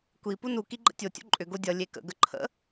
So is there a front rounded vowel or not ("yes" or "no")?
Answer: yes